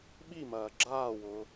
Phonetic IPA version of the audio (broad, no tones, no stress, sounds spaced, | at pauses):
ɓ i m ɐː ɡ͡ǁ aː w ʊː